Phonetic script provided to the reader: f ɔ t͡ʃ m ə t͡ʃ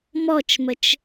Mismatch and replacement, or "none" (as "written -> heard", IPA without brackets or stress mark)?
f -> m